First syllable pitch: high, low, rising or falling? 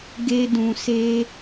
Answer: high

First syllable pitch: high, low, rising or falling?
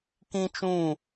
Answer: high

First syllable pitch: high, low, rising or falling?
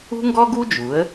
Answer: high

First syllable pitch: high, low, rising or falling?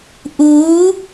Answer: rising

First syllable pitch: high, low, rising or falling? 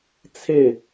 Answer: falling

